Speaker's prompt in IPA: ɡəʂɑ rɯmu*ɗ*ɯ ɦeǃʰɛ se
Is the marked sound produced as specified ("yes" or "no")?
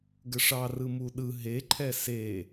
yes